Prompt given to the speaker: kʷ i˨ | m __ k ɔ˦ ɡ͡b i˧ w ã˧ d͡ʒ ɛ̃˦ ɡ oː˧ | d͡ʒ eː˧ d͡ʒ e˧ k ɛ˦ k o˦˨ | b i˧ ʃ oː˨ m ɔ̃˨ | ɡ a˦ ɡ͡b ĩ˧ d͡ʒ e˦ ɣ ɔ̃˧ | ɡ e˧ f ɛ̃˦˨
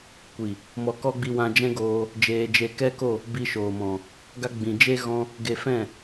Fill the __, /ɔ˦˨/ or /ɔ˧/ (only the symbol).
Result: ɔ˧